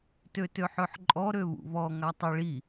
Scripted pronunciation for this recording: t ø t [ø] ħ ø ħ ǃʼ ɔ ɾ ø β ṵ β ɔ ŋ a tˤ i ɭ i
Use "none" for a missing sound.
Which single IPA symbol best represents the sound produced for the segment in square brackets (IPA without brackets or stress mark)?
ø